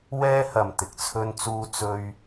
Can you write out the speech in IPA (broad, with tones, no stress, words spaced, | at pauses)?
wɛː˥hɐ˨m t̪ɪ˨k̚t͡sʰɵ˥nt͡suː˥ t͡sɵ˥ɥ